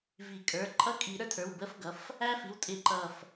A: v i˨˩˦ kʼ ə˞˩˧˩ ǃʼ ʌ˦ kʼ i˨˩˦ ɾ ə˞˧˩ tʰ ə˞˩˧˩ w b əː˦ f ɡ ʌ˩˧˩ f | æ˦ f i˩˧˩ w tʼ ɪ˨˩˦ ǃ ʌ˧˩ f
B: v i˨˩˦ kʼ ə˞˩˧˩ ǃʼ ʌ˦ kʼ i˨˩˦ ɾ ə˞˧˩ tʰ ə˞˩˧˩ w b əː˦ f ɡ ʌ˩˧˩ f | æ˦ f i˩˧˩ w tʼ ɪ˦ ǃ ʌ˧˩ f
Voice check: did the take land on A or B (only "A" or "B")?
A